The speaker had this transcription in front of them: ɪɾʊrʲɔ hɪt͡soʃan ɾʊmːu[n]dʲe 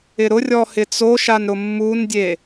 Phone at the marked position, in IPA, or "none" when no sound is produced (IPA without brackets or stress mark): n